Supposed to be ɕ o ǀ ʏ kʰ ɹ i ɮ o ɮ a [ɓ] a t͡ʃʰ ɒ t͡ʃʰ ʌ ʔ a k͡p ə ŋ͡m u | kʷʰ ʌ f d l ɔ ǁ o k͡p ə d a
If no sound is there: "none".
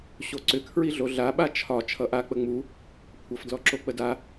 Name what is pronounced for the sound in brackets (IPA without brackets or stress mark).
ɓ